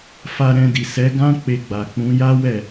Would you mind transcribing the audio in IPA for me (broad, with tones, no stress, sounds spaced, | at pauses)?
f a˧ ɾ ɛ̃˧ d i˨ s ɛ˨˦ ɡ ã˦ k͡p e˧ ɡ͡b a˨ k͡p ũ˨˦ j a˦ w ɛ˦˨